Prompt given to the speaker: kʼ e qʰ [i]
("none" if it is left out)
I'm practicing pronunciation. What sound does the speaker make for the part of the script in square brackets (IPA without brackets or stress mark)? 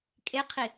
i